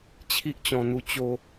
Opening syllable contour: high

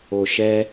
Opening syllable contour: low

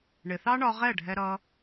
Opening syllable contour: low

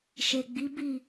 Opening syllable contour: low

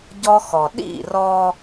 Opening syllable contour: high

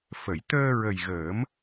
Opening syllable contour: low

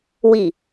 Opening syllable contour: low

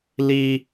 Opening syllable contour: high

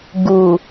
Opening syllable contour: low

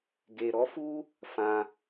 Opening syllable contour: low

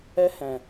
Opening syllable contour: high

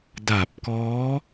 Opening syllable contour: low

